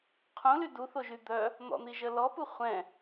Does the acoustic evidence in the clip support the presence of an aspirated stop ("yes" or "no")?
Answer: yes